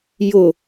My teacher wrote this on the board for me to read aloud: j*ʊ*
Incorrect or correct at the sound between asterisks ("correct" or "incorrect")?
correct